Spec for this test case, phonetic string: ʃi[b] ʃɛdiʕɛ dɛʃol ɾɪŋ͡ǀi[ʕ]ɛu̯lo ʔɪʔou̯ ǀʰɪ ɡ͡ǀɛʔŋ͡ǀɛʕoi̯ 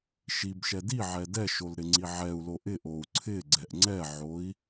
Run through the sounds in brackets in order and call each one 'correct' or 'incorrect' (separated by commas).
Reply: correct, correct